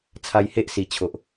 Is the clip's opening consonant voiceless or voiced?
voiceless